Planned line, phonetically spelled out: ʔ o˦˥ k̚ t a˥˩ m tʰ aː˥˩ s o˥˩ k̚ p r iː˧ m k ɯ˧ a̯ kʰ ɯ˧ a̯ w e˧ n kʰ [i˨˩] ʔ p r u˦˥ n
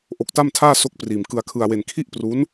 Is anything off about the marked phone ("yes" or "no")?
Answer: yes